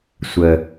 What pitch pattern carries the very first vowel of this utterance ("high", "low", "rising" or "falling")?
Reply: low